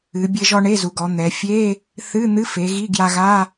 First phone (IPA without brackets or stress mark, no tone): ɨ